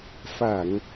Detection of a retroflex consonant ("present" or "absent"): absent